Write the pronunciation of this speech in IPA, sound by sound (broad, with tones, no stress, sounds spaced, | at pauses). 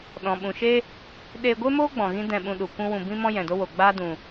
ɗ ɔ̃˨ ɓ ũ˨ ʃ e˦ | ɗ eː˧ ɡʷ e˦ m oː˦ ɡ͡b ɔ̃˨ ɣ ĩ˦ d ɛ̃˦˨ ɓ ũ˧ ɗ u˨ kʷ ũ˦ w ũ˧ b ĩ˦ m ɔ̃˦ j ɛ̃˨ d o˦ w o˨ ɡ͡b aː˦ d ũ˨